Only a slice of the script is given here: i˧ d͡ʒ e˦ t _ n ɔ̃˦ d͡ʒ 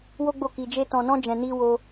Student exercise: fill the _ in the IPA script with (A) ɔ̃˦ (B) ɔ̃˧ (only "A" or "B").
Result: B